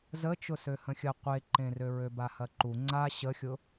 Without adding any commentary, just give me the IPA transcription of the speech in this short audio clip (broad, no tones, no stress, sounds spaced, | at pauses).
z ə t͡ʃ ʊ s ø h ə̃ xʲ ə qʷ e ǃ ẽ r ø ɹ ø b a h ɐ ǃ u ŋ͡ǀ a ɕ ə xʲ ʊ